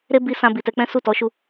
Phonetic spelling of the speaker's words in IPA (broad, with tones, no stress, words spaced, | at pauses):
ɾe˦bi˧sã˧ bi˨tɛ˧k͡pɛ̃˦ su˦˨tɔ˨˦ʃu˧